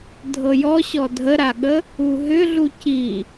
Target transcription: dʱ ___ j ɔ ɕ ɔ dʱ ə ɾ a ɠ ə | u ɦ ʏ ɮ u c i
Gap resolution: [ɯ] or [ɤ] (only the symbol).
ɤ